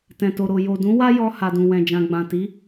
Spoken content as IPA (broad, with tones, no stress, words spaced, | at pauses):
tɛ̃˨to˨ɾo˨ jo˨dũ˨˦ wa˦jɔ˧ ha˨dũ˨wɛ̃˨d͡ʒã˨ ɡ͡bã˨ti˨˦